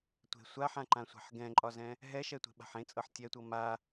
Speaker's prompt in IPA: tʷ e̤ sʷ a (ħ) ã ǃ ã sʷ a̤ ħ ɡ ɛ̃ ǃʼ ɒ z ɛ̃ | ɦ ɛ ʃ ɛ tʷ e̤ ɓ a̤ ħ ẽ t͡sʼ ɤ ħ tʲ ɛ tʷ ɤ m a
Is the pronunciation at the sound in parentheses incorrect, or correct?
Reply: correct